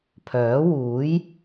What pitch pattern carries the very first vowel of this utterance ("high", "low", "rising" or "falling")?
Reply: rising